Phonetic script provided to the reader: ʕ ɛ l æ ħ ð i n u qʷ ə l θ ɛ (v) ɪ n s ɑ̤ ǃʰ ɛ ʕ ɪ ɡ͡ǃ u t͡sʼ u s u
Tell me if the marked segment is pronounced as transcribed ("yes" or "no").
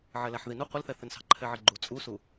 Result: no